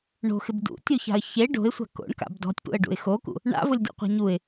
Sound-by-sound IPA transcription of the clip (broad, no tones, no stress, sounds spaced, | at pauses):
ɳ o̤ x ɪ b d ṵ tʲ u ç a̤ ə̯ ç e ɖ o̤ ɪ̯ sʷ a̤ k o̰ ɳ k a̰ b d ɔ̤ tʲ p ṵ ə̯ ɖ ṵ ɪ̯ x o k ṵ | ɳ a̰ v ʊ lʲ dʲ ɔ̰ qʷ a̤ ɲ u ɪ̯